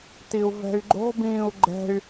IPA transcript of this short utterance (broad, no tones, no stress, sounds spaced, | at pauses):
t i u̯ v ɛ̤ y̯ ɡ͡ǃ o̤ b ĩː u̯ ɡ͡ǃ ɛ̤ y̯